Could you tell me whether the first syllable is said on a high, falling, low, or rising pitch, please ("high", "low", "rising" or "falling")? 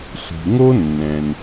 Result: low